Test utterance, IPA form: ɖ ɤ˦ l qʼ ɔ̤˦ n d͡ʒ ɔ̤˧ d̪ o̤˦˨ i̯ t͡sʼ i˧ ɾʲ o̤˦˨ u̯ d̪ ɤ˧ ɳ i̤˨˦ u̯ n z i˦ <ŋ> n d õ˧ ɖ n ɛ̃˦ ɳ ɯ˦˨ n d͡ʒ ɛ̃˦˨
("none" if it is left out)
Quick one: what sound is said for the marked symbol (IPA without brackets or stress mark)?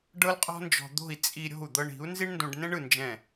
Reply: ɳ